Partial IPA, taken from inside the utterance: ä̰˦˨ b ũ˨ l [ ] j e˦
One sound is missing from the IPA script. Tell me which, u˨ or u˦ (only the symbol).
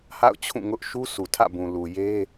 u˨